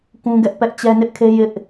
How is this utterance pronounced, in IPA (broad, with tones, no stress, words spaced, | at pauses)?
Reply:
kũ˦ɡɛ˦ʔpɛ˦ʔ t͡ɕɛ˦nɪ˦ʔkʰe˦ jɪ˦ʔ